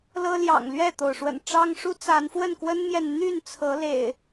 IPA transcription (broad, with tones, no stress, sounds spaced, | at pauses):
l ɤ˦ l j ɑ̰˨˩ ŋ l ɥ ɛ˥˨ t̪ o˩ ʊ̯ ʂ w ə̰˨˩ n ʈ͡ʂ ɑ˦ ŋ ʂ u˦ t͡s a˨˦ n f w ə˥˨ n k w ə˦ n m j ɛ˨ n n̪ y˥˨ n t͡sʰ ɤ˨˦ l ḛ˨˩ ɪ̯